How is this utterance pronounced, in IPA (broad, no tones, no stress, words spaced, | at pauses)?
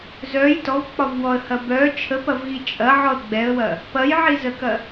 zœj tɔvk͡pɒvwɔə̯hɐ bœ t͡ʃʰəpɐvɣi t͡ʃʼɐʕɔə̯ ɡ͡bɛə̯wɐ | pɐjʕizəkɐ